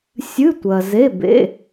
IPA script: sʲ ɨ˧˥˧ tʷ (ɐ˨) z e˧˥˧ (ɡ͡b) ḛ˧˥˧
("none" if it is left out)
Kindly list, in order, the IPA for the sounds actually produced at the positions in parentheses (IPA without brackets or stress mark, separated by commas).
ɐ˨, b